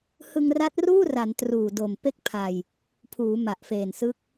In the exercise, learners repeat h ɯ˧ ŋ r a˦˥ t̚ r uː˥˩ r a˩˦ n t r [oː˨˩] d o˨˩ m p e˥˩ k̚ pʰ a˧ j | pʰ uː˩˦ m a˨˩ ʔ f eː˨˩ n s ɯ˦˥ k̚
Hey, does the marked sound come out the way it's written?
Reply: no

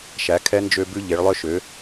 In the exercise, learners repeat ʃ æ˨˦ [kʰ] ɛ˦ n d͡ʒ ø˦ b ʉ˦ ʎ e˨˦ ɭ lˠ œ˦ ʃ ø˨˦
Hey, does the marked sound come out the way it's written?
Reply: yes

